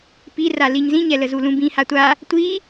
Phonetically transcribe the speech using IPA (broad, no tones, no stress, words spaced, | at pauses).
pira liɲzĩɲɛlə zulũbĩ hatʷa | tʷi